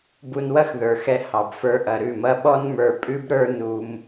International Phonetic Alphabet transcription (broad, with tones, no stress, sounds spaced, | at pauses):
b u˧ n w ɐ˦ x ð ə˞˨ x ɛ˧ h ɑ˨ b f ə˞˧ ʔ ɐ˨ ɾ ʉ˦˨ m ɐ˦ ɓ ɔ˦ n m ə˞˧ pʼ ʉ˦ b ɾ ə˞˦ n u˧ m